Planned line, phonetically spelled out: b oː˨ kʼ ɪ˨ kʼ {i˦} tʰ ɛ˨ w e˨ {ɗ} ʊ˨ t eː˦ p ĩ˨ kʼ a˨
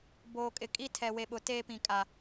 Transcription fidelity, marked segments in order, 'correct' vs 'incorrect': correct, incorrect: ɓ

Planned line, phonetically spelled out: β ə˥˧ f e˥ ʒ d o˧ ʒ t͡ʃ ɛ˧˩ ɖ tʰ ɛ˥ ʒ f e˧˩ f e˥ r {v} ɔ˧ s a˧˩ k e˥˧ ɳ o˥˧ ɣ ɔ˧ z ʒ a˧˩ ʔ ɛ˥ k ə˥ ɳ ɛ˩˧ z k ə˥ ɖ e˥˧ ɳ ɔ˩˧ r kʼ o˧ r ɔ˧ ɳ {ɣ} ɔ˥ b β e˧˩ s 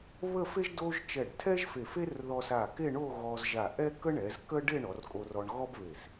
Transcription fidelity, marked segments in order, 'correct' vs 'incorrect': incorrect: ð, correct

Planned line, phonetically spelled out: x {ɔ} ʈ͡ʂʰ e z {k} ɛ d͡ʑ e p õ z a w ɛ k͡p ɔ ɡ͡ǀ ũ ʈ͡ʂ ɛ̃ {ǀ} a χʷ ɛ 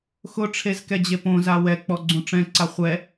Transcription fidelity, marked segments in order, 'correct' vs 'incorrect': incorrect: ʊ, correct, correct

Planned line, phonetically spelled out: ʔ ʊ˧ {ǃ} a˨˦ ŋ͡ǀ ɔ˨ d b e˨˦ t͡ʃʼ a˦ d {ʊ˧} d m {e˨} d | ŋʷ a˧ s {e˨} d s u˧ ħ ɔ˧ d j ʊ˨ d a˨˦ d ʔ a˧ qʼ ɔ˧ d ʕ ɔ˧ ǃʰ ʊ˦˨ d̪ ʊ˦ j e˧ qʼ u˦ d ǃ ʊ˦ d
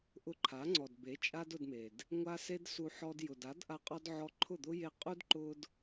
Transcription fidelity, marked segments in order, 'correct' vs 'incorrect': incorrect: ǃʰ, correct, correct, incorrect: e˧

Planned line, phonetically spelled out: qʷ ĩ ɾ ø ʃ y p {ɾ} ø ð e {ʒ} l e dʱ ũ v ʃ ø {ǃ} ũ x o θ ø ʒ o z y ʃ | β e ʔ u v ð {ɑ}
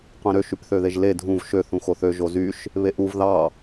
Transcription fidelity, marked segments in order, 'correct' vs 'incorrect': incorrect: θ, correct, incorrect: θ, correct

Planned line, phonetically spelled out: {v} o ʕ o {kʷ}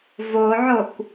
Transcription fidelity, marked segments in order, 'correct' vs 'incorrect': correct, correct

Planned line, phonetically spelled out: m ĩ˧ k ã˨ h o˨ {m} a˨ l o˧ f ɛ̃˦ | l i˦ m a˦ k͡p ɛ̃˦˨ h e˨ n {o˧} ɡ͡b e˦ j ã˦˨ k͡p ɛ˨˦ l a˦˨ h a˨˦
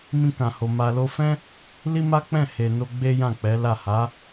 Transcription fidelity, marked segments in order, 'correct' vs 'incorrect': correct, correct

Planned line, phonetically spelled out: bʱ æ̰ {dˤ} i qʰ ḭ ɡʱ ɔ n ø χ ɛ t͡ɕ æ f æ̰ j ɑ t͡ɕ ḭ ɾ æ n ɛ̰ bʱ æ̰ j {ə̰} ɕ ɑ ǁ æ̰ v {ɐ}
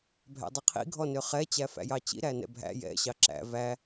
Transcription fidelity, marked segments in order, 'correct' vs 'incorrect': correct, incorrect: ɛ̰, incorrect: æ

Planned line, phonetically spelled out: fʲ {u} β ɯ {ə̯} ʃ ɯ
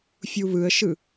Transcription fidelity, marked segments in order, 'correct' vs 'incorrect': correct, correct

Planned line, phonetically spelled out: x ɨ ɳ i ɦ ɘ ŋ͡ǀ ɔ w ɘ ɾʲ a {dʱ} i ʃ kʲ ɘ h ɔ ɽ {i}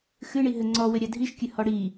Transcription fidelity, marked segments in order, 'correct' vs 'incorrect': correct, correct

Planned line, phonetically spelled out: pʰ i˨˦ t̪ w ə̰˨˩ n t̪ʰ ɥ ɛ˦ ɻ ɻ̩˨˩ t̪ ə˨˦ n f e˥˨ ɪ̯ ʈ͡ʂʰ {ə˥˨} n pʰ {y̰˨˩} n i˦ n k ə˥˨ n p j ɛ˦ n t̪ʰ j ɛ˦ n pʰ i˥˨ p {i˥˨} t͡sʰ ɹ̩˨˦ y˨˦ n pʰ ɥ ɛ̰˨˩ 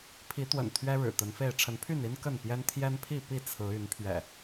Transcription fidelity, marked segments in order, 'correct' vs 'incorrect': incorrect: ə˨˦, incorrect: y˥˨, correct

